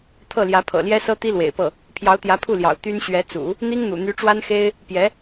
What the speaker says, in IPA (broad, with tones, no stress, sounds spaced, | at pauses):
t̪ʰ ɤ˥˩ l j ä˧˥ pʰ ɤ̰˨˩ l j ɛ˥ s ɤ˥ t̪ i˥ l w ḛ˨˩ ɪ̯ p ɤ˥˩ | pʰ j ɑ˧˥ ʊ̯ t̪ j ä˧˥ pʰ u˥˩ l j ɑ̰˨˩ ʊ̯ t̪ y˥ n ɕ ɥ ɛ˧˥ t͡s ṵ˨˩˦ | n̪ i˥ ŋ n̪ ṵ˨˩ n̪ y˧˥ ʈ͡ʂ w a˥ n x e˥ ɪ̯ | p j ɛ˧˥